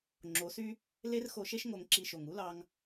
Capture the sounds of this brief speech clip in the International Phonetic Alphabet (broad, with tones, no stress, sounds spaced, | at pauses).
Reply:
ŋ͡ǁ o˨˦ s y˦ | l e˦ r x o˧ ʃ e˦ ʃ ŋ o˧ ŋ ǁ i˧ ʃ o˨ ŋ u˦ l ɑ˧ ŋ